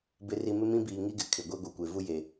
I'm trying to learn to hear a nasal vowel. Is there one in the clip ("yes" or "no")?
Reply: yes